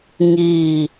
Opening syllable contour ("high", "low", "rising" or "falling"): falling